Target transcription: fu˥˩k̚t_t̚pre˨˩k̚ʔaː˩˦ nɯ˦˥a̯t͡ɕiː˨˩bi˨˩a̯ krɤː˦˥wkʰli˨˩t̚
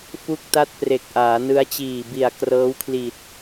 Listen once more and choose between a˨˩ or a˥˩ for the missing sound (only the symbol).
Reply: a˥˩